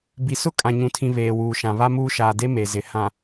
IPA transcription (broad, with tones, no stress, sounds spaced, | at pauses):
b i˨ s ʊ˦ kʼ ã˨ ɲ ũ˨ tʰ ĩ˨ β eː˨ w uː˨ ʃ ã˨ β a˦ m uː˦ ʃ aː˨ d e˦ m e˨ z ɪ˨ h ã˨